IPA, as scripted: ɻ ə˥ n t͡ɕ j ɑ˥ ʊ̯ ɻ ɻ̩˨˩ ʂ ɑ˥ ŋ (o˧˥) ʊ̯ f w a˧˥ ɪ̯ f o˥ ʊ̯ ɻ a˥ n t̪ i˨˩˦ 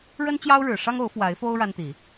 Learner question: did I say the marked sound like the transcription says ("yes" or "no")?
yes